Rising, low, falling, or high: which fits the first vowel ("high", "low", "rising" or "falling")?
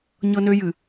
high